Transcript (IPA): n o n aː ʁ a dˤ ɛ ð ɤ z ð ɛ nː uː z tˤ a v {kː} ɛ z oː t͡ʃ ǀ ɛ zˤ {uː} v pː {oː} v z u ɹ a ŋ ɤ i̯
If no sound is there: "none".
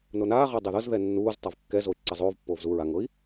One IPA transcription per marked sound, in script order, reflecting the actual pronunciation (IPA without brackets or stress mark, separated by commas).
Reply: kː, oː, oː